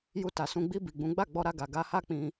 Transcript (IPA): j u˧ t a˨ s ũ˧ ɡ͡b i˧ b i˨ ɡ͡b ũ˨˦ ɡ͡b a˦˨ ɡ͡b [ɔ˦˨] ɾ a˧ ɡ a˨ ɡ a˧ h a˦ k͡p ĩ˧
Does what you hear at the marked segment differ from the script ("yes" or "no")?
yes